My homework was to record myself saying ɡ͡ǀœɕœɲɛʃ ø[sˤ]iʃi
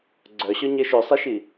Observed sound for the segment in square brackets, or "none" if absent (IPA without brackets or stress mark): sˤ